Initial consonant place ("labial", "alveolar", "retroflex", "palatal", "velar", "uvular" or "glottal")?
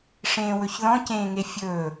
retroflex